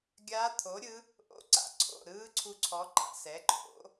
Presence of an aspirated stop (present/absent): present